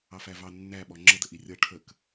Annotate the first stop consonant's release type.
implosive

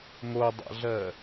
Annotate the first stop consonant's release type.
plain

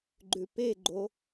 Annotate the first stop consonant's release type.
click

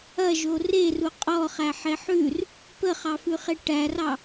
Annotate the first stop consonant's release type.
ejective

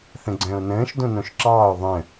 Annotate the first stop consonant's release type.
click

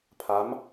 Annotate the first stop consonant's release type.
aspirated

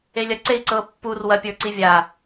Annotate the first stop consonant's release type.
click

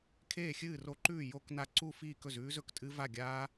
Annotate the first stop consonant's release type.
aspirated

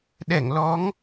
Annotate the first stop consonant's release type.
implosive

